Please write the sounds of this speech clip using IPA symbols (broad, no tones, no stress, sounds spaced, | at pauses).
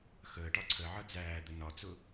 x əː ʈ ɒ ǀʰ ə ʕ ʌ d͡z æː d̪ ə n ɒ t͡s ʊ